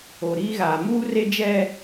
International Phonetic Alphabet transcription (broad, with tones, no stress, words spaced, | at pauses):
o˨ɾiː˦ɣaː˨ muː˦re˦d͡ʒɛ˦